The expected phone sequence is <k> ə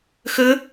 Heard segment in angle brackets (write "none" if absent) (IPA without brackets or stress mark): x